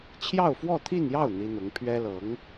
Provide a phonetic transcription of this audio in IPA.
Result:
t͡ɕʰ j ɑ˥˧ ʊ̯ f w ɔ˥˧ t̪ʰ i˥˧ n j ɑ˥˩ ʊ̯ n̪ i˥ n̪ ʊ˧˥ ŋ pʰ ɥ ɛ˥ l ɤ˧˥ ŋ

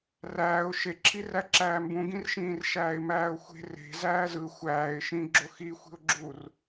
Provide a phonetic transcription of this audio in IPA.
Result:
r æː ʊ̯ ʃ e ǁʰ i r æ ǁ æː m b ũ ɡ ĩ r ʃ ĩː r ʃ æː ɪ̯ m æː ʊ̯ xʷ e̤ r e̤ z æː z ɯ xʷ æː ɪ̯ ʃ ĩ ɡ͡ǁ o x i xʷ i̤ ʊ̯ ɡ͡ǁ u r

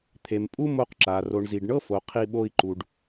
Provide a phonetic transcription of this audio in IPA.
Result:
t̪ʰ e˨ m pʼ u˦ m o˦ q ǁ a˨ r o˨ ɳ z i˨ ɖ ɳ ɤ˦ f o˨ qʰ i˧ ɓ o˧ i̯ ǃ u˨ ɖ

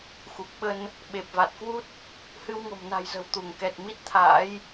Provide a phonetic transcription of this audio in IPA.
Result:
x u˨˩ k̚ ɓ ə˧ n | ɓ e˨˩ p̚ v a˨˩ t̚ k w u˦˥ t̚ | h ɨ˧ w ŋ o̤˨˩ m n a̤˨˩ j z ə̤˨˩ w t̪ u˧˩ ŋ k ɛ˨˩ t̚ m i˦˥ t̚ t̪ʰ a̰ː˧˥ j

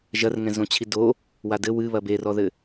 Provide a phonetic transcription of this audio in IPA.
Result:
ʒ ɐ r ŋ ɛ̃ z õ t͡ɕʰ i d o | w a d ɘ w ɨ β ɐ b e r ɔ ð ɘ

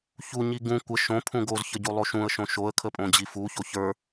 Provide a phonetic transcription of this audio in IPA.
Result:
ç u ɲ i ɡ ũ kʷ ə ʃ õ pʰ ũ ɡ o z ç ə ɟ u lˠ o ʃ ũ ə̯ ʃ õ ʃ o ə̯ kʰ ə pʼ õ d͡ʑ i f u ç o ç ə˞

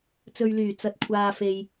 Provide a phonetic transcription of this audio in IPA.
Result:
t͡s ɵ˨ ɥ l yː˨˩ t͡s ɐ˨ t̚ kʷʰ aː˨ f e˨ j

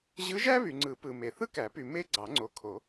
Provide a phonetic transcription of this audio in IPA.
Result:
ʑ ɯ˧˥ ʒ æ˥ β y˨ ŋ͡ǀ ɯ˨˩˦ p ɯ˨ m e˨ θ ɯ˥ k æ˨˩˦ p y˨ m e˥ ɡ͡ǀ ɑ˨˩˦ ŋ͡ǀ o˨ kʰ o˨˩˦

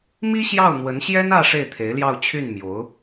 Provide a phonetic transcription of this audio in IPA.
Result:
m i˥ ɕ j ɑ˥˩ ʊ̯ n̪ w ə˧˥ n ɕ j ɛ˥ n ä˥˧ ʂ e˥˩ ɪ̯ t̪ʰ e˧˥ ɪ̯ l j ɑ˥˧ ʊ̯ t͡ɕʰ y˥˩ n m j o˧˥ ʊ̯

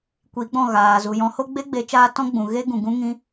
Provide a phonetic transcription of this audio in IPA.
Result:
kʷ i˨˦ ɡ͡b ɔ̃˦˨ ɣ aː˨ z u˨ j ɔ̃˨˦ h o˦ ɡ͡b e˦ ɡ͡b e˨˦ t͡ʃ aː˧ t ɔ̃˦ ɡ͡b ũ˨ ɣ e˦ ɡ ũ˨ ɡ ũ˦ ŋ ĩ˦

